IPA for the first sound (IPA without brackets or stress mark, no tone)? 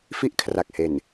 f